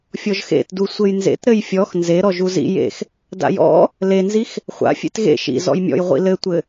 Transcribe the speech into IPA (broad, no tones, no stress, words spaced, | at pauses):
fʲɔʒxḛtdu sʷɘjnzḛtɾɘj fʲɔx nzeɾɔ ʒuzḭ jḛx | da̰jɔ̰ | lenzix | χʷa̰ fʲḛtɣḛ ʃḭ zɔ̰jmʲɔ̰jʁʷḭ lɘtʷɘ